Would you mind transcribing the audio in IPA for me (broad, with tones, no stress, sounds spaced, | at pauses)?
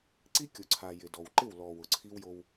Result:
ǀ i˦ kʲ o˨ ǀʰ a˨ j ɪ˨ d ɔ˨ w ǃ ɪ˦˨ w l ɔ˨ w ʊ˨ ǀʰ i˦ w j o˦ w